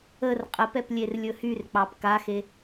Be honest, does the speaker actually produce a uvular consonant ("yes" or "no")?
yes